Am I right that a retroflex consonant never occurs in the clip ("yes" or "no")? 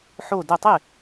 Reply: yes